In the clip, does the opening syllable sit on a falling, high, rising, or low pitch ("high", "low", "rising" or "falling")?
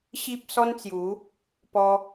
high